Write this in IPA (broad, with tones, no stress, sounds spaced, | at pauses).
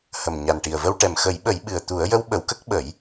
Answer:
h ə˨˩ m ɲ a˨˩ n ʈ i˨˩ ə̯ v ə˧ w ʈ ɛ˨˩ m x ə˨˩˦ j ɓ ə˨˩˦ j ɓ ɨ˨˩ ə̯ t̪ u˨˩˦ ə̯ j ə˧˥ w ɓ ə˨˩˦ w k ə˦˥ k̚ ɓ ə˨˩˦ j